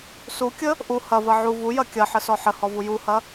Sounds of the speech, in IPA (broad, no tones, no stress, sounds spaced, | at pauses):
s u kʲ ə | ʔ u h ɐ v ɐ ʕ u v u j ɐ kʲ ɐ ħ ə s ɔ ħ ə h ɔ v u j u h ɐ